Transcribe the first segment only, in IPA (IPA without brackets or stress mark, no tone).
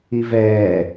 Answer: i